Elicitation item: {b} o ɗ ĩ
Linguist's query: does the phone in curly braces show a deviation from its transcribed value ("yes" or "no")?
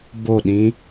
no